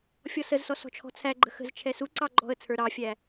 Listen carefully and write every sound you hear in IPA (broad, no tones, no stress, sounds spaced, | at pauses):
fʲ ɔ s ə z s ɔ s ɔ̤ t͡ʃʰ ɔ̤ t͡sʰ æ ɡ͡ǃ ə̤ x ə̤ z t͡ʃʰ ɛ s u ǀ ɑ ɡ͡ǃ ɔ̤ ə̯ t͡sʰ ə˞ ɾ ɑ fʲ æ